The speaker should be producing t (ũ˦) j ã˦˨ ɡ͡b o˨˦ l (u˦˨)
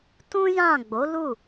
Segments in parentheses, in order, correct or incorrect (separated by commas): correct, correct